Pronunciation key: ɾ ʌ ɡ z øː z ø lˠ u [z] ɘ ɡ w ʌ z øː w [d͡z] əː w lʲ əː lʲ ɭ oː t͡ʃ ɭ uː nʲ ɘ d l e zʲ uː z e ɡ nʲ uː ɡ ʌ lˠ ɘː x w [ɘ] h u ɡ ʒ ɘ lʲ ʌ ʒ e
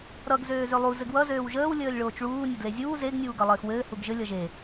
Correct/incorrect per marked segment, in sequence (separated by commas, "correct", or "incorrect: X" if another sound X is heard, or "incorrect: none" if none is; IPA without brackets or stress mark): correct, incorrect: ʒ, incorrect: ɘː